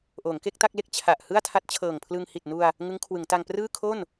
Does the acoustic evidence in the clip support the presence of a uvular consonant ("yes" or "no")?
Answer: no